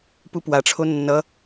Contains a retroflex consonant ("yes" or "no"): yes